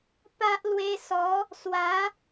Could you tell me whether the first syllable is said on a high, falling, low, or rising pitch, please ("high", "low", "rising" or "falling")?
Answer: high